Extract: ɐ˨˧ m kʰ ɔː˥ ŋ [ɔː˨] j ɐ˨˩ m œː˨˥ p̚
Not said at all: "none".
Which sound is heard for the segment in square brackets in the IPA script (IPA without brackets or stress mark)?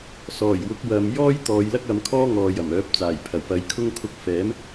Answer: ɔː˨